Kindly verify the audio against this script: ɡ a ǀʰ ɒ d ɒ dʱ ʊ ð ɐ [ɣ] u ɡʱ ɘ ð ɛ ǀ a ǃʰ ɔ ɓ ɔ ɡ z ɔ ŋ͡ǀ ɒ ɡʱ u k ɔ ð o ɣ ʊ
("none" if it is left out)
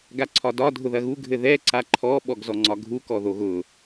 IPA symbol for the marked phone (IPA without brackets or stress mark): ɣ